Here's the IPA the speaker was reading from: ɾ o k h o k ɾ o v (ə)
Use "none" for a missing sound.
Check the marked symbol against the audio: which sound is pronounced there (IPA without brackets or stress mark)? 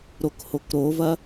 ɐ